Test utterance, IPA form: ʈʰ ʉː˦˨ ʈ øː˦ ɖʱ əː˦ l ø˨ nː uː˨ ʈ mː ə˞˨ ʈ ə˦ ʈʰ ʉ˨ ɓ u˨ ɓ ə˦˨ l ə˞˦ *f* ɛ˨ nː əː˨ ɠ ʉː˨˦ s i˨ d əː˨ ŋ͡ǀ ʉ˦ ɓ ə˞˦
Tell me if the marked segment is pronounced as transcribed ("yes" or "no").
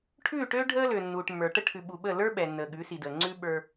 no